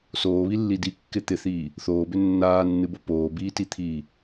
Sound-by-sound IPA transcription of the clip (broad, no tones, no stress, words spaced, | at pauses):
soːβilːi dikːɪ t̪ɪθiː | θoːbʏ nːaːnːɨbo poːbiːtit̪ʰiː